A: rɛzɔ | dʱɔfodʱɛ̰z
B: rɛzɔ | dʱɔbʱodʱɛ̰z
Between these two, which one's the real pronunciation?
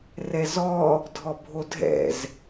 B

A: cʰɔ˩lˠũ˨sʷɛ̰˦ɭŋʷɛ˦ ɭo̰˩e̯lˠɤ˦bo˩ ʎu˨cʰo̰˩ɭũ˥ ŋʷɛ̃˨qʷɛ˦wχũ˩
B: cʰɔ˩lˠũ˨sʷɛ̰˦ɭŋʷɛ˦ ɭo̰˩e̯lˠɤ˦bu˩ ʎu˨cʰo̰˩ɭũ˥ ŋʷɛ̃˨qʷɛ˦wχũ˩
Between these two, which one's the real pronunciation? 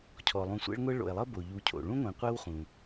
A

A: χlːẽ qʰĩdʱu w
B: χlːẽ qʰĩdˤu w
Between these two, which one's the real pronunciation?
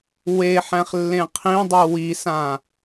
B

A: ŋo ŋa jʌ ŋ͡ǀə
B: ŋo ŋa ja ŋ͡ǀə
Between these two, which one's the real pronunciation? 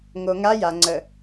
B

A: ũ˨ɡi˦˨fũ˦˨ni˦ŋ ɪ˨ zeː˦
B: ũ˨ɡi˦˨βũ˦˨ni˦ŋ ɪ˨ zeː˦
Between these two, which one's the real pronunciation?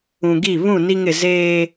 B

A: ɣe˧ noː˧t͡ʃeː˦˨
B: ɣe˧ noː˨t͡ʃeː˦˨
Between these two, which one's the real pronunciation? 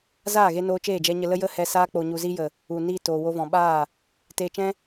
A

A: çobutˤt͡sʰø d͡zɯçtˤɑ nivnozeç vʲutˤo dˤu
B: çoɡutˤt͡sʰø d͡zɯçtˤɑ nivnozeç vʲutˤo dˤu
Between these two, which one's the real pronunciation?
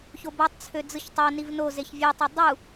A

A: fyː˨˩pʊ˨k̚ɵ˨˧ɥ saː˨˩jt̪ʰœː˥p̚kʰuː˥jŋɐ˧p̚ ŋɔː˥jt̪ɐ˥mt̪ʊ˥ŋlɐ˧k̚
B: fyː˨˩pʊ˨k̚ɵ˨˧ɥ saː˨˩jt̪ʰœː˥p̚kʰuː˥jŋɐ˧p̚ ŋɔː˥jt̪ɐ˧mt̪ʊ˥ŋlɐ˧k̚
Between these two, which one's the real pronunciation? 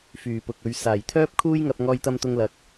A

